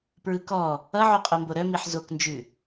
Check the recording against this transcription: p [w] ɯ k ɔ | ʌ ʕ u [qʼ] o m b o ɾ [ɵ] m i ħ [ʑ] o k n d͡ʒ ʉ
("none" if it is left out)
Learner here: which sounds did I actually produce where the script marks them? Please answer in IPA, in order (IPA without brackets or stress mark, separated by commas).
ɹ, qʼ, œ, z